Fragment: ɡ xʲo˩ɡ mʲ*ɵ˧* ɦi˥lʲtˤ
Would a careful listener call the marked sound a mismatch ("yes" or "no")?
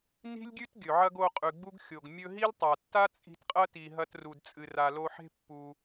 no